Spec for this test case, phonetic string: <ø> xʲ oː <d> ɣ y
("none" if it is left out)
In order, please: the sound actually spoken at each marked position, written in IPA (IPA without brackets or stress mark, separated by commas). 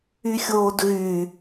y, d